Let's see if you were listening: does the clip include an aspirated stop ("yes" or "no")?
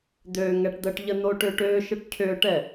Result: yes